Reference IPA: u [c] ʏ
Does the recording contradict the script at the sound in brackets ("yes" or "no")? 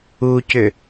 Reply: no